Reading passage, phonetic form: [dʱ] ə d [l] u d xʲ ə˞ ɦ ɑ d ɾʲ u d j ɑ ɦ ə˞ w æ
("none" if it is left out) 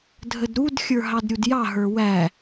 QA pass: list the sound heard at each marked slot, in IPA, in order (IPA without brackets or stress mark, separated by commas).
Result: dʱ, ɾ